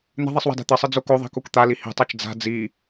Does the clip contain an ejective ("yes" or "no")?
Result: no